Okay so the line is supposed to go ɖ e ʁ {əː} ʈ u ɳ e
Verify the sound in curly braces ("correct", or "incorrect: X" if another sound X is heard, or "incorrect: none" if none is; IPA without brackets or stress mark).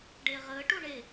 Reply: correct